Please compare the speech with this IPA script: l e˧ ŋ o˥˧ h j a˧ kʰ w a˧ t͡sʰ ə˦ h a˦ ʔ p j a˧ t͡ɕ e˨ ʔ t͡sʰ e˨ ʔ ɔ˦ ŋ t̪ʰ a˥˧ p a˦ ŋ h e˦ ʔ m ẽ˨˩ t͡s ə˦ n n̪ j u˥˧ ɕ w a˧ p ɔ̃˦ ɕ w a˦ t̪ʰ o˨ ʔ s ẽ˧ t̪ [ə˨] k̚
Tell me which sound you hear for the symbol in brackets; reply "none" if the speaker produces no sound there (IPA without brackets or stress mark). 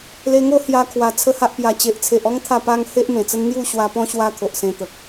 ə˨